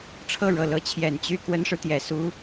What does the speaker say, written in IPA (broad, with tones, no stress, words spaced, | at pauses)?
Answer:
ʈ͡ʂʰɤ˥˩ɻɤ˨˩ lɤ˧˥t͡ɕʰjɛ˨˩n t͡ɕy˥˩ kwə˥nʂɻ̩˨ t̪jɛ˨˩su˧˥